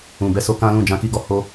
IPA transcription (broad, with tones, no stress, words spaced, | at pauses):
ũ˨bɛ˧so˧ kã˦lũ˦˨ d͡ʒã˧ki˧ɡɔ˧ ho˦